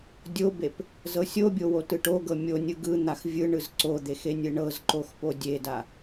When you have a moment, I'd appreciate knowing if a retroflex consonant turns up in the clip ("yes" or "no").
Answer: yes